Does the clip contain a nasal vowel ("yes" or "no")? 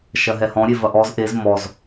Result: yes